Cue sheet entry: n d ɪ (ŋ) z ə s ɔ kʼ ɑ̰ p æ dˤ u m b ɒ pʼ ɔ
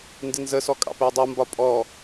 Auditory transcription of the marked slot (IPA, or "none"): n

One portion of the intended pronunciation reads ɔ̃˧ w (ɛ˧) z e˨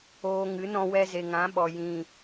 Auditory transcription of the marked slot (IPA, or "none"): ɛ˧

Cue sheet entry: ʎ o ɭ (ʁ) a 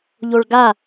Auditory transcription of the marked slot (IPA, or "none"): ɡ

